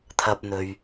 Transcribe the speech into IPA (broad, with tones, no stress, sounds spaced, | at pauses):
t̪ʰ ɐ˧ p̚ n̪ ɵ˨ ɥ